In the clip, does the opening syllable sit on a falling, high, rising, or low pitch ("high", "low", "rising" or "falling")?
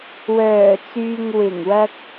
low